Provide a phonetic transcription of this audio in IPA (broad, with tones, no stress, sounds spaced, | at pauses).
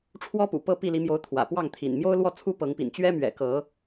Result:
ʈ͡ʂʰ w ɔ˦ p ṵ˨˩ p ɤ˥˨ p i˥˨ l i˨˦ m j o˨˦ ʊ̯ t̪ʰ w ä̰˨˩ p w ɑ˥˨ ŋ t̪ʰ ḭ˨˩ n m j o˦ ʊ̯ l w ɔ˥˨ t͡sʰ u˦ p ɤ˨˦ ŋ p ḭ˨˩ n t͡ɕ ɥ ɛ˦ m ɥ ɛ̰˨˩ k ɤ˨˦